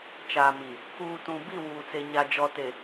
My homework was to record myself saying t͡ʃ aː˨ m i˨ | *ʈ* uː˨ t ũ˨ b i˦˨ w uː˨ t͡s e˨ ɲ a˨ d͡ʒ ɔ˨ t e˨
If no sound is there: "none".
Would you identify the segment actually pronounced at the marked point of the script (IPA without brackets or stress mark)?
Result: k